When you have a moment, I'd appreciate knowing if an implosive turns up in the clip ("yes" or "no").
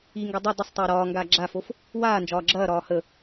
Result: no